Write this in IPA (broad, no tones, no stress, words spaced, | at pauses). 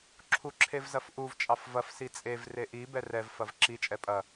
ǁʰuǁʰevzɐfʔuv t͡ʃʼɑfvɐf sit͡sʼev reʔi bɛrɛv fɐvǁi t͡ʃʼɛpʼɐ